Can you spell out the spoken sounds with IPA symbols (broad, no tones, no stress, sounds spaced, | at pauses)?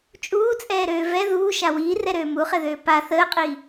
t͡ʃʼ uː t͡sʼ ɛː ɾ øː v ɛ ð uː ʃ a w iː r ɛ ɾ øː m u χ ɛ ð øː p a θ əː qʼ iː